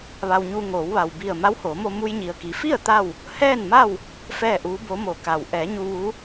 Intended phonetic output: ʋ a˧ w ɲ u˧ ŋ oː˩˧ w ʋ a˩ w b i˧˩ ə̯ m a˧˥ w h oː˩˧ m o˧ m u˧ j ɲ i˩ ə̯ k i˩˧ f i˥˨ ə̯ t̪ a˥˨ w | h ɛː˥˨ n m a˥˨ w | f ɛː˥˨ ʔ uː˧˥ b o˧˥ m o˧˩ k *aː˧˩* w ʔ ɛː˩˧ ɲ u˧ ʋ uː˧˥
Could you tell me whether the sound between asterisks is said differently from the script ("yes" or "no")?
yes